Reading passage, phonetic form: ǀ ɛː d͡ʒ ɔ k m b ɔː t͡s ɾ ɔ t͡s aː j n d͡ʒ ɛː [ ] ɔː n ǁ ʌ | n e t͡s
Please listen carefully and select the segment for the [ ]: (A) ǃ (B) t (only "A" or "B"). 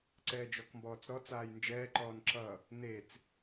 A